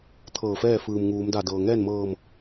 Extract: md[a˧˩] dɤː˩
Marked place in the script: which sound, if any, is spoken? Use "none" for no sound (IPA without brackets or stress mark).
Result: a˧˩